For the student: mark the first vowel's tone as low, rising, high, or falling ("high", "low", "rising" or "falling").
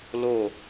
falling